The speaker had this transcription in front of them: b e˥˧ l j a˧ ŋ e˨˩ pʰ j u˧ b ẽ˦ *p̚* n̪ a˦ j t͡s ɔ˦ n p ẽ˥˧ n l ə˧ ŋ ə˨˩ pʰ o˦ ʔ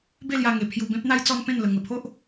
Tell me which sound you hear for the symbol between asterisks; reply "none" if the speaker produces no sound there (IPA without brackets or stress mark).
p̚